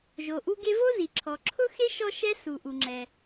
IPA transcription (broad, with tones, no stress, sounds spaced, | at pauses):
ʒ o˩ ʔ u˥ ɡ e˥ v o˥ z i˩ ǁʰ ɔ˩ ǁʰ ʊ˥ x e˥ ʃ ɔ˥ ʃ ɛ˥ s u˩ ʔ u˩ ŋ͡ǁ ɛ˩